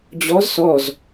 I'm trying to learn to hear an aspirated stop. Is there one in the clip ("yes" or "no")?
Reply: no